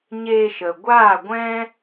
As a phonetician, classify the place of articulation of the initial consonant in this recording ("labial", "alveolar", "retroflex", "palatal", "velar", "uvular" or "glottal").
palatal